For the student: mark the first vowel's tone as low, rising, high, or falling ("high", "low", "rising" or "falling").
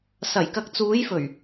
low